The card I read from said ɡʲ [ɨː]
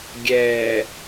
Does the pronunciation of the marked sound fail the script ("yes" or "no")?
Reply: yes